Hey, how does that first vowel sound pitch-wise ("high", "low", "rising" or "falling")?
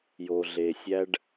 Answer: low